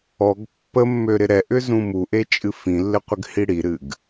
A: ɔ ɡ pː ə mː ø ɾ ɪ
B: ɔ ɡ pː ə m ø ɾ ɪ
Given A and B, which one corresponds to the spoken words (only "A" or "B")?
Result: A